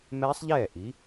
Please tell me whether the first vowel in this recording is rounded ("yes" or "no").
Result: no